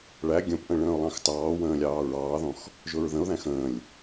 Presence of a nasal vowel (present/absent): present